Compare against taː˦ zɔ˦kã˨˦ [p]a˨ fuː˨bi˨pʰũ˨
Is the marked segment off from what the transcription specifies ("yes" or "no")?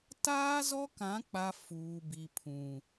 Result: yes